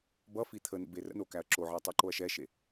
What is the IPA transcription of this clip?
bʌfi t̪ʰə nə̰berə̰no kæɐ̯ǁoʕɛ tˤə˞ǃoɐ̯ʃɛʃe

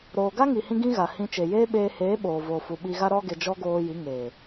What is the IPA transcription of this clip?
ɾoː˨ɡa˦ŋi˨hĩ˧ ɡĩ˦ɣa˨ hĩ˧ t͡ʃe˨jeː˦ɓeː˧ heː˨˦ɓoː˨voː˨fu˨ ɓi˧ɣa˦ ɾɔ˦ɡe˧d͡ʒɔ˦ ɡoː˧ji˨˦ŋeː˨

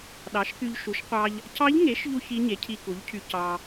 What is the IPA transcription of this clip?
ɗɑ˩˥ʃky˧ʎʃu˩˥ʃ qʷɑ˧ʎ | cʰɑ˧˥ʎŋe˩˥ʃ ʎu˥çi˧˥ɲe˩˥ cʰi˧ku˩˥ʎcʰy˧ cɑ˧

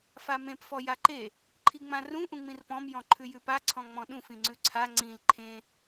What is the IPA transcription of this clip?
famẽp fɔjaǃe | ǃʰiŋ͡mãrũ ʔũŋ͡mĩrpɔ̃m jɔ̃ǃʰʉjʉpa ǀʰɔ̃ŋ͡mɔ̃ɗũf ĩŋ͡ǀʉǀʰa ŋ͡ǀĩl ǃʰẽ

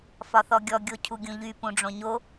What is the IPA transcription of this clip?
fɒθɔɡʲɔ ɡʲocʰuɡʲũʎy pũɖ͡ʐõɲo

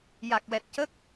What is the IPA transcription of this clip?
ja˨˩k̚wɛ˨˩t̚cəː˦˥k̚

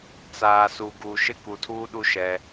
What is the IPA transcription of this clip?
t͡saː˨su˨ɡu˨ ʃɪ˦ku˨tʰuː˦ɗu˦ ʃɛ˦

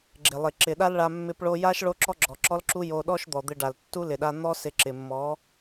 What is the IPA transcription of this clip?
ɡ͡ǁɪ˨lˠɪ˨ ǁɪ˨ɗa˦lɭa˧ mːɪ˧pɭo˧ja˦ʃ ɭo˦ǁɔ˦ ɡ͡ǁɔ˨ǁɔ˦lǁu˦ jo˧ɗɔ˦ʃ d̪ɔ˨d̪ɪ˧ɖa˨l tːu˦lɪ˨ɗa˧ n̪ɔ˦ sɪ˧ǁɪ˨ mːɔ˨˦

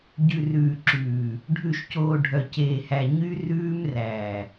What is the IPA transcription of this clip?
ɟʉ˨rʉː˨ǁʉː˨ | ɖʱʉ˨ʃcoː˨ ɖʱœ˨ceː˨hæ˨ ɲy˦ rʉː˦m ræ˨

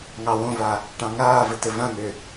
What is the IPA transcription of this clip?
ŋɑwõva | ʈɑ̃ŋaːvɘ tɘvãn̪ø

